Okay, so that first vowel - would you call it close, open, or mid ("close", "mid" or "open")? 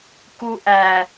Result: close